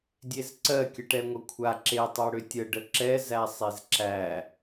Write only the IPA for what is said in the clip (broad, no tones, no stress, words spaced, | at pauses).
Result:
dʲezǀɜ kʲəʈɛŋʷəkʷʰa ǁe tˤɛɽʏtʲə ɖəǁɛ zæsˤezǁæ